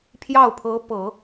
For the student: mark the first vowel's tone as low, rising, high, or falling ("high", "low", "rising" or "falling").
falling